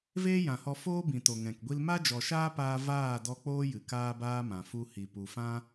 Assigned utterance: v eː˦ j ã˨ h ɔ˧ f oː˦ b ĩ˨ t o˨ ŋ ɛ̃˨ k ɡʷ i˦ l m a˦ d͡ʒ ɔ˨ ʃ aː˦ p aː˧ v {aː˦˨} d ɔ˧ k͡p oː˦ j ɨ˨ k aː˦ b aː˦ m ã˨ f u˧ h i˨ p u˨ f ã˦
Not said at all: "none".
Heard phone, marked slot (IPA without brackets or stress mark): aː˦˨